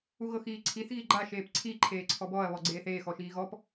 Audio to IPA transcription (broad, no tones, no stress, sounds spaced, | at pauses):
u ɣ ɤ x iː ǀʰ i θ ɣ i ɡ͡ǃ a ʃ eː p ǀʰ i ǃʰ eː ǀʰ ɔ b ɔ ɐ̯ β ɔ ɡ͡ǀ eː θ eː x ɔ ʃ iː ɣ ɔ p